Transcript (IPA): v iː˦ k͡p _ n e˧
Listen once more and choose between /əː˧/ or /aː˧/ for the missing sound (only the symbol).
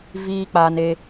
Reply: aː˧